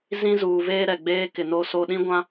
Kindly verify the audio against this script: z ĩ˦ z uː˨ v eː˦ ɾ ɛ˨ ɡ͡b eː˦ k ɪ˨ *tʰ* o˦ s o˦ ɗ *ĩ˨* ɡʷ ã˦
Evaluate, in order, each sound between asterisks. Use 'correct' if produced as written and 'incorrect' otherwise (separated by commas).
incorrect, incorrect